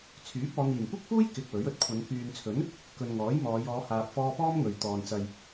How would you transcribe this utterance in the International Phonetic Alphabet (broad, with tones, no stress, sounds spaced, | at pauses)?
t͡sʰ yː˨˥ p̚ ɔː˨˧ n̪ iː˨˩ m kʷ ɪ˥ k̚ f uː˥ j k ɪ˧ k̚ w ɵ˨˥ ɥ ɵ˨ t̚ kʷʰ ɐ˨˧ n k yː˨ n t͡sʰ ɵ˨˥ n | k ɵ˨ n ŋ ɔː˨˥ j m ɔː˨˧ j ɔː˨˧ h aː˨ p̚ f ɔː˧ p ɔː˥ m ŋ ɵ˨ ɥ t̪ ɔː˨ n t͡s ɐ˨ j